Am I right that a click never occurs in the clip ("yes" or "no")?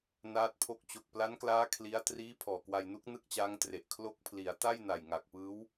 yes